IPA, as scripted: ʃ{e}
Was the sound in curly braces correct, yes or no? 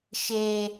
yes